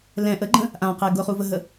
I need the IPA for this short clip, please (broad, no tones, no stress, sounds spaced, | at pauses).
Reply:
l ɛ̃ ʔ ə ɡ͡ǃ ə̃ | ʔ ã q ɛ ɡ ʊ χ u v ə ɦ ə